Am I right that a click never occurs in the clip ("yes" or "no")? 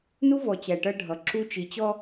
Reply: no